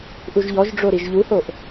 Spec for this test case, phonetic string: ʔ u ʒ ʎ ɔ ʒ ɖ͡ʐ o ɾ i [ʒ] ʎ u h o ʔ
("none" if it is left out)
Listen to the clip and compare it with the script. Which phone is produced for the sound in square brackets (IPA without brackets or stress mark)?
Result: ʒ